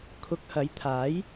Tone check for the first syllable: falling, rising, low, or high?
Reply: rising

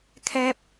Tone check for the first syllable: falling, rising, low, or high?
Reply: high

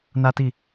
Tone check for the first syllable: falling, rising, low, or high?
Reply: high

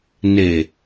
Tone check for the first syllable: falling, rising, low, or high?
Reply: low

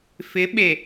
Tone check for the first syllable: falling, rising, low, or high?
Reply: rising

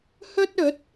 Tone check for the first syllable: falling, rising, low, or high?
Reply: high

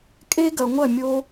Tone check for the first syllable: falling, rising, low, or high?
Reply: high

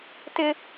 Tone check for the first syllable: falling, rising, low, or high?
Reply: high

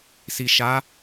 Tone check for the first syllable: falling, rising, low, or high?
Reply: low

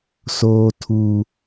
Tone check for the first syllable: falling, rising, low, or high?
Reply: low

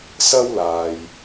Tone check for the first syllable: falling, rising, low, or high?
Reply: high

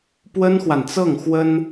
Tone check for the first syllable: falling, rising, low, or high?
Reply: high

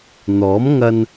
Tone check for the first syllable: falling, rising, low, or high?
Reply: rising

